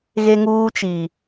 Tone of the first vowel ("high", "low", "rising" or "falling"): high